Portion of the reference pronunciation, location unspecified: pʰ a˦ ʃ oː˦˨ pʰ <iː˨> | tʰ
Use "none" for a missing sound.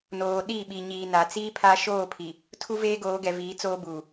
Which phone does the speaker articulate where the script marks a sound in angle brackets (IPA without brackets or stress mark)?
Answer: i˨